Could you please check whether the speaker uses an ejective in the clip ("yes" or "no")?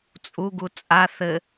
yes